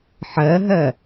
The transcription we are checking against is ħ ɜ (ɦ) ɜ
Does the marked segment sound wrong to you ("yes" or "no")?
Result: no